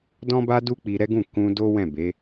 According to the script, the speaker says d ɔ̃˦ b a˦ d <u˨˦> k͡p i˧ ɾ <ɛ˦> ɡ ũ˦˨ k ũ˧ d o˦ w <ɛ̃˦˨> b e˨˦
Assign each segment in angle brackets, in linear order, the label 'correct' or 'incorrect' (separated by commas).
incorrect, correct, correct